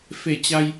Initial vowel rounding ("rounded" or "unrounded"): unrounded